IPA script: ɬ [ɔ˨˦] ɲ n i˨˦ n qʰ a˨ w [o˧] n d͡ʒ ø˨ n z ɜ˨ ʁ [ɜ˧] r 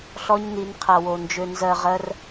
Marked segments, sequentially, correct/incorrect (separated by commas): incorrect, incorrect, correct